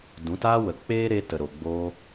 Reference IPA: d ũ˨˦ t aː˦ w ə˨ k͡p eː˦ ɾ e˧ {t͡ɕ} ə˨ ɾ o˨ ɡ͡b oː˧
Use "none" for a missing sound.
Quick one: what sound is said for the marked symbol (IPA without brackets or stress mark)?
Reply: t